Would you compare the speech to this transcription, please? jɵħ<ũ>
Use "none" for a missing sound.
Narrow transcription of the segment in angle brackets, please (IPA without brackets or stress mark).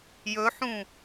ũ